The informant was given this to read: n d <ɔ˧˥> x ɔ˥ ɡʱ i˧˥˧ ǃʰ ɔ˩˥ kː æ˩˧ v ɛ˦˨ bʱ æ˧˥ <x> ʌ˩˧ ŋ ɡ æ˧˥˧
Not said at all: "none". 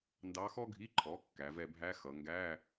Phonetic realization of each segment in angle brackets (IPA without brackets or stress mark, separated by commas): ɑ˧˥, x